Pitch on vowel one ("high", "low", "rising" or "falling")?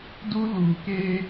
high